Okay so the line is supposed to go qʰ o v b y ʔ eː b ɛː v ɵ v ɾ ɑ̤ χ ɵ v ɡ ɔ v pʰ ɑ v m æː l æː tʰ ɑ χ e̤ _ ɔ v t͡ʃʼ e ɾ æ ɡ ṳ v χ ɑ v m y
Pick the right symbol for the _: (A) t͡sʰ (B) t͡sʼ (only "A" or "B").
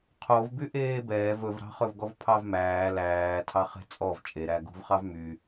B